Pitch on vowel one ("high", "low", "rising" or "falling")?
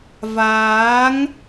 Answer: rising